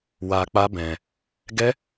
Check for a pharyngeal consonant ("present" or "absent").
absent